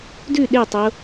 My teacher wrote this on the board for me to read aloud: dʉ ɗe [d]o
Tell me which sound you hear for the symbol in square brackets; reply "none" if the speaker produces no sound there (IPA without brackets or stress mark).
tˤ